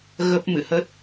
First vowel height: mid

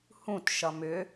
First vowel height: high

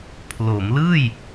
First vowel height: mid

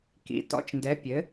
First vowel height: high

